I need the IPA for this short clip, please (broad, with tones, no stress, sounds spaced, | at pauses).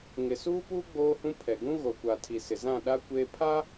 ŋ ɪ˨ s uː˦ p uː˦ ɡ͡b oː˦ h ũ˦ pʰ ɛ˨ ɡ ũ˦ ɣ o˨ kʷ a˨ tʰ i˨ s ɪ˨ z ã˦˨ ɗ a˦ kʷ eː˦ pʰ a˦